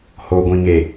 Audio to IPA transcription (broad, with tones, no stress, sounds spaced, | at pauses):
h o˨ ɡʷ ĩ˨ ŋ e˨